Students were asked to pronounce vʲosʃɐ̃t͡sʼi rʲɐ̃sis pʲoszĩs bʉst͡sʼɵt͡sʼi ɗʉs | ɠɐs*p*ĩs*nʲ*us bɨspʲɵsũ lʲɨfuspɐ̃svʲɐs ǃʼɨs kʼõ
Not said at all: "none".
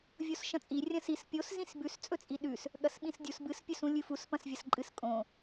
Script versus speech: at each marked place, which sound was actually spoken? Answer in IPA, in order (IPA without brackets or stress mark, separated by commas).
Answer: ɓ, dʲ